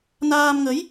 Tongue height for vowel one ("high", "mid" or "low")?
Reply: low